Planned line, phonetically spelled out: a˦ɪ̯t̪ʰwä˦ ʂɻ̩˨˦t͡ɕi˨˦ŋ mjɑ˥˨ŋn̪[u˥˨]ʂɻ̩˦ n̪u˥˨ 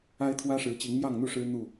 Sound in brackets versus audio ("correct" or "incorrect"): correct